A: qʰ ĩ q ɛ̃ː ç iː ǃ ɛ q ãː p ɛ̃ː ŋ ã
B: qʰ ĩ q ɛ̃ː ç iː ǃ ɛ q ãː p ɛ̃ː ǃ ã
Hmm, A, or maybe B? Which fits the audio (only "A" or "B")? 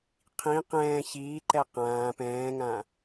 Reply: A